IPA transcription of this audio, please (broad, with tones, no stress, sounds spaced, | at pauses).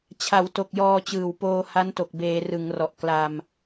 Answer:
t͡ɕʰ a˩˦ w t o˨˩ k̚ j ɔː˧ t͡ɕ ɯː˨˩ w p oː˧ h a˦˥ n t o˨˩ k̚ b eː˩˦ r ɯ˩˦ ŋ r ɔ˨˩ ʔ k l a˧ m